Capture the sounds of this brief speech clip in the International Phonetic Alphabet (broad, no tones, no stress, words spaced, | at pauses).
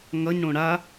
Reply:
ŋʌɲɽõ ɽa